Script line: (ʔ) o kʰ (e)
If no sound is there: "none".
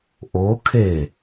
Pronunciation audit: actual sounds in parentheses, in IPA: ʔ, e

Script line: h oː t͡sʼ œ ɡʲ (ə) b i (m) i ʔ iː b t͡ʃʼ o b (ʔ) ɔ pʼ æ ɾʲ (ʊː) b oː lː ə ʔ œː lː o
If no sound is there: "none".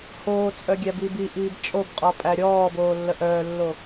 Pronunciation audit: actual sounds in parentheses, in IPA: æ, b, qʼ, ɔː

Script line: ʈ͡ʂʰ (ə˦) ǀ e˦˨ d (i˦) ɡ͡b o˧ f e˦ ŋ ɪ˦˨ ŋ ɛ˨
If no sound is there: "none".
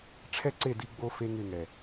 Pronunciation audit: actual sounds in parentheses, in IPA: ɛ˦, i˧

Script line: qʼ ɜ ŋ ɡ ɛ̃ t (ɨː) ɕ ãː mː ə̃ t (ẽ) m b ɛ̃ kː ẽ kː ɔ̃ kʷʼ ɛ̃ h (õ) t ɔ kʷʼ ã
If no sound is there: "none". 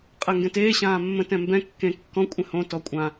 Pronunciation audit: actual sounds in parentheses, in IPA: eː, ɛ̃, õ

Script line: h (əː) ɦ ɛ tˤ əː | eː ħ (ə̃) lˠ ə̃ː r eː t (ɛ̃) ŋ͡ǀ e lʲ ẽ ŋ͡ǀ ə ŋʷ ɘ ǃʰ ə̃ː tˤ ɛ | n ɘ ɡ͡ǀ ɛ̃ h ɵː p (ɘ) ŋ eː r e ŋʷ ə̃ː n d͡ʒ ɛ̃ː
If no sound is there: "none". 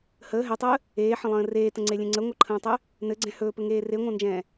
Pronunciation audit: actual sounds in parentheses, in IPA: əː, ə̃, ə̃, ɘ

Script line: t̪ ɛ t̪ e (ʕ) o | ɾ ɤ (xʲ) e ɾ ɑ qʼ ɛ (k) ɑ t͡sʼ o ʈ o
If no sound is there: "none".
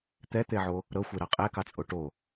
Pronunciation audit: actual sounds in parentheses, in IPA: ʕ, xʷ, k

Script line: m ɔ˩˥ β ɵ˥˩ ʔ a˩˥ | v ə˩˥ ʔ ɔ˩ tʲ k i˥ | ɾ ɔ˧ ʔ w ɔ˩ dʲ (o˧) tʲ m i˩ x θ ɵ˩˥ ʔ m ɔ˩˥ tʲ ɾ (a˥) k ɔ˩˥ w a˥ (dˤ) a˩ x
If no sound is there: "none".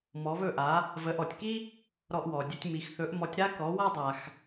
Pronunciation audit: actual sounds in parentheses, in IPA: ɵ˧, a˥, dˤ

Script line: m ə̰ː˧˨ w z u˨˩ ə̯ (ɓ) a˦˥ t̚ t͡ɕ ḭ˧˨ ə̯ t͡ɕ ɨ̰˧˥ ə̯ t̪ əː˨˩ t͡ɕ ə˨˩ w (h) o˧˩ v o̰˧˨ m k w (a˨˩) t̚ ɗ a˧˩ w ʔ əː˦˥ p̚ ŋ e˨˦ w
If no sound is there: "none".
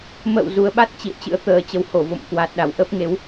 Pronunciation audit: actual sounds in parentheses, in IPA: ɓ, h, a˨˩

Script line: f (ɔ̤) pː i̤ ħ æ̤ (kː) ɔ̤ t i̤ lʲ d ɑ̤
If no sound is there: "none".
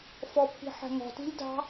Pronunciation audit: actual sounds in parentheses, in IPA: ɔ, ŋ

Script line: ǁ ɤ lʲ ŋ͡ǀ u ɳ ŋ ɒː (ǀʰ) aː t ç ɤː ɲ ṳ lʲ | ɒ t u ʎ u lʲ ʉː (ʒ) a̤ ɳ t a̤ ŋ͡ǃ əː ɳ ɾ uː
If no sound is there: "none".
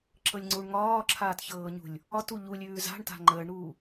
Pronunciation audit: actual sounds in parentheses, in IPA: ǁʰ, z

